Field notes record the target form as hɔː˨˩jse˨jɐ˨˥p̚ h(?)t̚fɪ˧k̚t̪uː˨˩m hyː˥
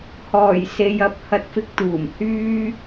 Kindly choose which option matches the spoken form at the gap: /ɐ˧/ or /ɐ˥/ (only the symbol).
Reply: ɐ˧